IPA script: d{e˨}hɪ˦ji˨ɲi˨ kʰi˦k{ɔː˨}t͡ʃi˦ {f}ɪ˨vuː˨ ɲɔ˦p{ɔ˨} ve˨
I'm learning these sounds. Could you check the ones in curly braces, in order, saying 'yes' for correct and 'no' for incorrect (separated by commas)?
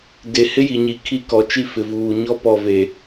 yes, no, yes, yes